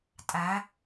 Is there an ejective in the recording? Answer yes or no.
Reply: yes